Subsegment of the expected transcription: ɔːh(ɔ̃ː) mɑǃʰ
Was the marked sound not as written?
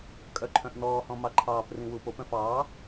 yes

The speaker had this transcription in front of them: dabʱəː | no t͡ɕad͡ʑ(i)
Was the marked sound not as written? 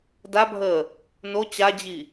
no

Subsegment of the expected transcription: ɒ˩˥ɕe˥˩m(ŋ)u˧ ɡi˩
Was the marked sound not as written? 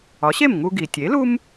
no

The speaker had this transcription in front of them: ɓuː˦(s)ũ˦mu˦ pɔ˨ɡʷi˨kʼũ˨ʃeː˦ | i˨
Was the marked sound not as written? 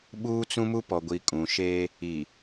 yes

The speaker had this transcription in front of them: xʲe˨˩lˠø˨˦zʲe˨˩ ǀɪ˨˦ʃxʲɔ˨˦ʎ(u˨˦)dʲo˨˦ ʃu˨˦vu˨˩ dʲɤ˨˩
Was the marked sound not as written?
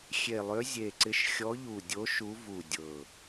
yes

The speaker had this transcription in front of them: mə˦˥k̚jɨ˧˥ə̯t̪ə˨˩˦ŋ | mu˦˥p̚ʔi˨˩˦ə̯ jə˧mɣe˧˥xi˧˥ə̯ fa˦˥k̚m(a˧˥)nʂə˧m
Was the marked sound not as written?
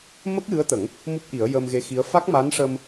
no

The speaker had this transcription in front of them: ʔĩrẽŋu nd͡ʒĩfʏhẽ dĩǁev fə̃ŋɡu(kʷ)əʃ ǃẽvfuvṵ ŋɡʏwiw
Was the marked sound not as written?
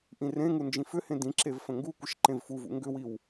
no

